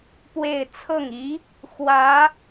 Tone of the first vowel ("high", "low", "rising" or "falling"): falling